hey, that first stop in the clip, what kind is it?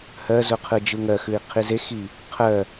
aspirated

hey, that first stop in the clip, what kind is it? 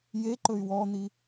click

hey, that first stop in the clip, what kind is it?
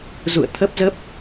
aspirated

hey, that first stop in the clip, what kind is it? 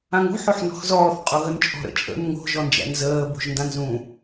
ejective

